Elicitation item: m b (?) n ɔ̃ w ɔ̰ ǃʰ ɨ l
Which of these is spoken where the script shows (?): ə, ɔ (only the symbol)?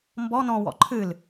ɔ